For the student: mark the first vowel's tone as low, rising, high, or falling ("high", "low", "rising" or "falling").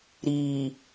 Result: low